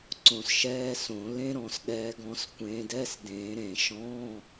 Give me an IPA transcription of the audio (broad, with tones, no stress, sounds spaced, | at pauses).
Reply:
ǀ õ˧˩ s ʃ ɛː˧˥˧ s õ˨˩˦ l ẽ˦˥ ɾ ɔ̃˨˩˦ s ɗ ɛː˨˦ ɡ ɔ̃˨˦ s kʷ ẽː˨˦ d ɛ˧˥˧ s d ẽː˨˩˦ ɾ ẽ˨˩˦ ʃ ɔ̃˧˥˧